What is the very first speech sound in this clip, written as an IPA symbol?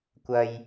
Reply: kʷ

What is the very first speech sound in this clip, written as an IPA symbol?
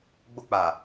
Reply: ɡ͡b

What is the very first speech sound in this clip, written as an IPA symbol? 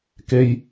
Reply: k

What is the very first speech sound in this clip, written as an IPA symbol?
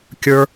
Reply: kʲ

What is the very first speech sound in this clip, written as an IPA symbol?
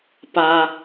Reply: p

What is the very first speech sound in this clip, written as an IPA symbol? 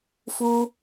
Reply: f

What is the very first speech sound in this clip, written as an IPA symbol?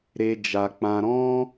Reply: ɾ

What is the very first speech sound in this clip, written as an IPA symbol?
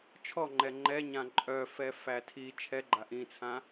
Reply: t͡ʃʰ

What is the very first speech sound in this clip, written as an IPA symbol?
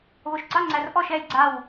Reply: β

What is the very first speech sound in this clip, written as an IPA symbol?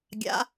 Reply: ɡʲ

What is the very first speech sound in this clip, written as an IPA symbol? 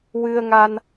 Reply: w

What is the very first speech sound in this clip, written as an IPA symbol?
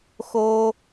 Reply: x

